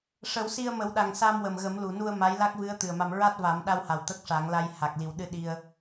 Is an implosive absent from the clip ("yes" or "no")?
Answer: no